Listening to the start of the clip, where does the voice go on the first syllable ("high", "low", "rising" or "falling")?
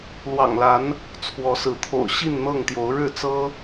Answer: low